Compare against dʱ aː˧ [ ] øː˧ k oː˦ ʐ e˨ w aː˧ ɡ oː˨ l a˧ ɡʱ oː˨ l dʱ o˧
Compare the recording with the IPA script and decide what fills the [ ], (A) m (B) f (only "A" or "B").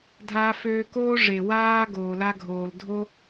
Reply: B